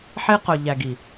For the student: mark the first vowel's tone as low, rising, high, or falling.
high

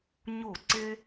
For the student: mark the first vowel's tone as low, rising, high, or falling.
falling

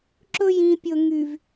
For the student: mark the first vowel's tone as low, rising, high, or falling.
high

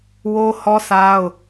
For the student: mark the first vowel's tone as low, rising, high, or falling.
high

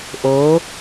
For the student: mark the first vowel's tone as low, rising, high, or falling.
rising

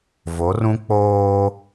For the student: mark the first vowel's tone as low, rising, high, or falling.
rising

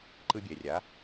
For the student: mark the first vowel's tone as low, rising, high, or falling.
high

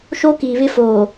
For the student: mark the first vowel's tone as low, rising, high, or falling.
high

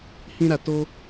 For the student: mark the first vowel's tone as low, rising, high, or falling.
high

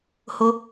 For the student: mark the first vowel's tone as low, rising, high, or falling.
high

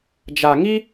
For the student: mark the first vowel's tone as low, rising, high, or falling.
low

